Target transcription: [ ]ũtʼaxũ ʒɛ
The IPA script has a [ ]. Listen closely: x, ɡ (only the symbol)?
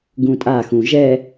ɡ